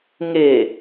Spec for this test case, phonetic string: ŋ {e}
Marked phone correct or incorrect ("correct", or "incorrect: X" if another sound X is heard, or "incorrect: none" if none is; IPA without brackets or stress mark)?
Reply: correct